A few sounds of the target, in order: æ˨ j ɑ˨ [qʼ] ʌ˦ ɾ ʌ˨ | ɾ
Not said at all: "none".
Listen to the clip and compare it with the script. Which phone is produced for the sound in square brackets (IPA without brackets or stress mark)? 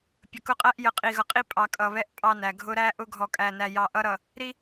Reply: ʔ